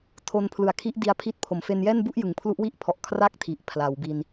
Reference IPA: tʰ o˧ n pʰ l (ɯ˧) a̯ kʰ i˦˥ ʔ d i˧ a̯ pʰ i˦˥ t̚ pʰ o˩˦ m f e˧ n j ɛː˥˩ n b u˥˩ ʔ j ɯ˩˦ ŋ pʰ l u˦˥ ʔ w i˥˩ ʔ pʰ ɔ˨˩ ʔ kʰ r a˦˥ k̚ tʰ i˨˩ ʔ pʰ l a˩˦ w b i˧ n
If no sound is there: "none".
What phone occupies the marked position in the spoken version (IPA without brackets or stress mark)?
ɯ˨˩